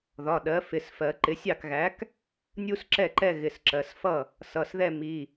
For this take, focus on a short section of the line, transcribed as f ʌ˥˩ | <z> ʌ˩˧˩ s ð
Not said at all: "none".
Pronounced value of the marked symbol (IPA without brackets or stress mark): s